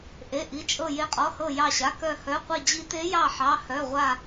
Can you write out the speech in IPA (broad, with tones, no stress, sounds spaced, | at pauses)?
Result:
ʔ e˩˧˩ ʔ i˩˧˩ t͡ʃʼ ɤ˧˩ j e˨˦ qʼ ɔ˩˧˩ h ɤ˧˩ j ɑ˧˩ ɕ a˩˧˩ k œ˧˩ h œ˩˧˩ qʷ i˧˩ d͡ʑ i˨˦ t e˨˦ j ɑ˧˩ ħ ɑ˩˧˩ h œ˩˧˩ ʁʷ a˧˩